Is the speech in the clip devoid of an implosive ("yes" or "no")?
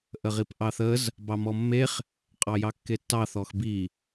yes